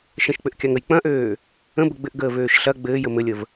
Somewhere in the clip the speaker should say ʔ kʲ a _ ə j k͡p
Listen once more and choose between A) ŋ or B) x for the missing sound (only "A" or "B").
A